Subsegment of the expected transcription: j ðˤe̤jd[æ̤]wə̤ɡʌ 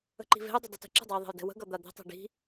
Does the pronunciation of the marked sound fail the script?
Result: yes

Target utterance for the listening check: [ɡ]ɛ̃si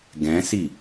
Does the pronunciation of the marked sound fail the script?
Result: no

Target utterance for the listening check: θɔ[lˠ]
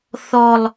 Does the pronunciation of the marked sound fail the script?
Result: no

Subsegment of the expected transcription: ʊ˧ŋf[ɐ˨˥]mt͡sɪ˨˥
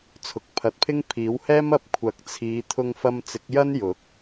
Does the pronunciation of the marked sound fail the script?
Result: yes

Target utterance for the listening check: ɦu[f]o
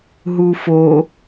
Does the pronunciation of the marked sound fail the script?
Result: no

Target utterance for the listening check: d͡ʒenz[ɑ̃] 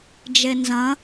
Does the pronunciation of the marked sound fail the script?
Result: yes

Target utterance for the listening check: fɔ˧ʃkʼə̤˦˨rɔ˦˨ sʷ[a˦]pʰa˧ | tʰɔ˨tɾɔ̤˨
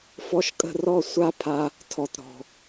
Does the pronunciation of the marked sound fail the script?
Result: no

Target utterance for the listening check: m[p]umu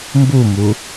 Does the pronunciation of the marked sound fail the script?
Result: yes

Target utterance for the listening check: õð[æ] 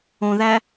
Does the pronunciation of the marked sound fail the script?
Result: no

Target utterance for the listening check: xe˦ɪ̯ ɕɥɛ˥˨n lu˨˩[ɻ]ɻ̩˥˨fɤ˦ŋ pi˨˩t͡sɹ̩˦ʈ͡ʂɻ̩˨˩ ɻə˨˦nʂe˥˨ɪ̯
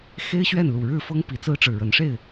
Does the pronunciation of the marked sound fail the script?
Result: no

